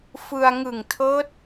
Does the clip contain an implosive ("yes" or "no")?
no